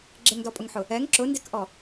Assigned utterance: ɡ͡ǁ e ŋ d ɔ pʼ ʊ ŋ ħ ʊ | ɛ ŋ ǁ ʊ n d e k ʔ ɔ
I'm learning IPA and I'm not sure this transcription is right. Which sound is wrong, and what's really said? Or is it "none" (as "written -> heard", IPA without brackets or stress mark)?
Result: none